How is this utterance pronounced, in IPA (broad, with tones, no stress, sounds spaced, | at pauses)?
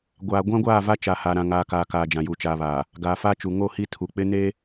ɡʷ aː˨ ɡʷ ã˦ ɡʷ aː˦˨ v a˦ t͡ʃ a˨ h a˨ ɾ ã˨ ŋ aː˨ k aː˨ k aː˨ d͡ʒ ã˨ j u˨ t͡ʃ aː˨ β aː˨ | ɡ aː˨ f a˦ t͡ʃ u˨ ŋ o˦˨ h i˦ tʰ u˨ k͡p ɪ˦ n e˦